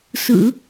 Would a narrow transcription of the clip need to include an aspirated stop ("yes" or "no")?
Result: no